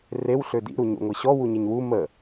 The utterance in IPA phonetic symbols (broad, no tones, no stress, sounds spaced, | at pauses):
r e w ɬ ø d ḭ ɾ u ɲ o̰ ŋʷ i ɕ ɔ w u ɲ e ɲ w u m ə